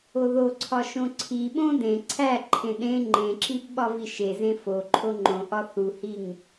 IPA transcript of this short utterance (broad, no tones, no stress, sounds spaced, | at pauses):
o ð o ǀʰ ɒ ʃ õ ǀʰ i ɓ õ d ẽ ǀʰ æ ǃʰ ẽ ɗ ẽ ŋ͡ǃ ẽ ǁ i b ɓ ɒ v i ʃ e z ẽ f o ǃʰ o ŋ͡ǃ õ ʔ ɒ θ u h i ŋ